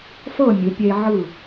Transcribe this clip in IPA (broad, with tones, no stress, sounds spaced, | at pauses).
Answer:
f ɤ˥˧ mʲ ɯ˩˧ pʲ e˧ ʕ ɯ˧˩